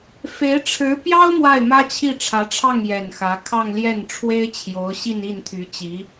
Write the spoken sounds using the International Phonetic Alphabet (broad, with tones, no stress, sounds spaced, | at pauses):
f e˧˥ ɪ̯ ʈ͡ʂʰ ɻ̩˧˥ p j ɑ˥ ʊ̯ m w a˥˩ ɪ̯ m ä˥ t͡ɕʰ i˥˩ ʈ͡ʂʰ ä˧˥ ʈ͡ʂʰ ɑ˥˩ ŋ j ɛ˨˩ n x ä˧˥ kʰ ɑ˥˧ ŋ l j ɛ˥˩ n ʈ͡ʂʰ w e˥ ɪ̯ t͡ɕʰ j o˧˥ ʊ̯ ɕ i˥˧ n i˥˩ n t̪ʰ y˧˥ t͡ɕ i˧˥